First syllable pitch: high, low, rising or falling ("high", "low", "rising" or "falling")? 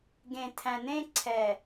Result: low